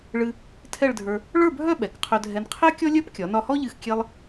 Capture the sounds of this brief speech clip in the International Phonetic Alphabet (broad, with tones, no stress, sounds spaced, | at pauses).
ɭ ɨ˧ | tʰ ɛ˥˧ ɭ dʱ ə˞˧ | ɭ ə˞˥˧ bʱ œ˥˧ ɓ ɛ˩˧ k qʰ œ˧ dʱ ɛ˧ n qʰ ɛ˥ kʲ ɔ˥ lʲ œ˥ p kʲ ɒ˩˧ n ɒ˧ h ɔ˥ ʎ ɨ˧˩ x kʲ e˧ lˠ